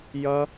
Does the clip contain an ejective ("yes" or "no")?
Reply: no